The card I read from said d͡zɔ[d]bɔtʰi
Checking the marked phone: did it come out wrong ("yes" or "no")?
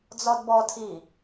no